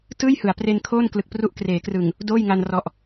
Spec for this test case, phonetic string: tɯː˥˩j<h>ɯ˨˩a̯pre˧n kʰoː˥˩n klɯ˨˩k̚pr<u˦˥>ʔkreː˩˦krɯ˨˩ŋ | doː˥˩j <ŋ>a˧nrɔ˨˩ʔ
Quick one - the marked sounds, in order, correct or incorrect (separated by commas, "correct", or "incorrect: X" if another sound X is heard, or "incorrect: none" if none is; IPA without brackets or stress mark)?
correct, correct, correct